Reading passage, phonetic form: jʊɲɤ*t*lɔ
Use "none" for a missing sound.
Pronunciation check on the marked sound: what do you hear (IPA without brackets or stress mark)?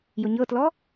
t